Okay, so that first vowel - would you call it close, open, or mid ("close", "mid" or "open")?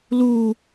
close